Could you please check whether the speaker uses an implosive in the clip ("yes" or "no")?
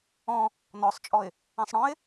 no